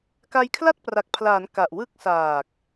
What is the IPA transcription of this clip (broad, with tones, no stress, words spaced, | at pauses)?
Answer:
ka˧jkʰla˥˩t̚pra˨˩k̚pʰlaː˩˦n ka˨˩ʔwɯ˥˩k̚ saː˨˩k̚